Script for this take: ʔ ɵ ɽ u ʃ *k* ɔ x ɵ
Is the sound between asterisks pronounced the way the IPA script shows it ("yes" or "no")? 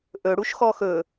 no